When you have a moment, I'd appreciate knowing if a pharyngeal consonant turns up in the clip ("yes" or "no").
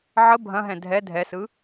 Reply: yes